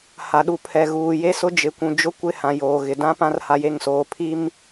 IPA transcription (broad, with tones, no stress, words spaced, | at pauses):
ha˨ɗu˨ pʰɛ˨ɣuː˨ je˦sʊ˦ d͡ʒɪ˨kʷũ˨ d͡ʒʊ˦kʷɪ˦˨hã˨ joː˨ɣɪ˨ dã˦pã˦r ha˦je˦˨ŋsoː˨ pʰi˦m